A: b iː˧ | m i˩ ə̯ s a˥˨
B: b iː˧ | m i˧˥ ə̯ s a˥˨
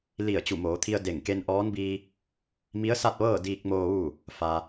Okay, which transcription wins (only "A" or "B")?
B